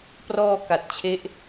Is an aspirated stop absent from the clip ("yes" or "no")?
no